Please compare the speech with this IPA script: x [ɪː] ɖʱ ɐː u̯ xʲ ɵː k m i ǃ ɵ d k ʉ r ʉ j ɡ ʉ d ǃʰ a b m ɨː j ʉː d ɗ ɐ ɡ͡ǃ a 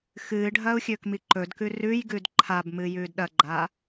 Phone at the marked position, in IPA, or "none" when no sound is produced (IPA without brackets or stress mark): ɨː